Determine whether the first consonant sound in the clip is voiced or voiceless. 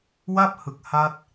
voiced